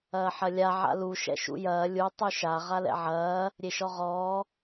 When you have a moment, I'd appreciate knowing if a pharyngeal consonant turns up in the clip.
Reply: yes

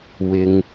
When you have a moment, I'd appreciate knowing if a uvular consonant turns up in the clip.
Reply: no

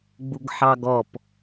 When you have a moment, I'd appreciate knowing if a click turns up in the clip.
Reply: no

